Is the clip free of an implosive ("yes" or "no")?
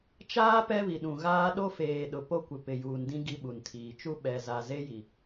no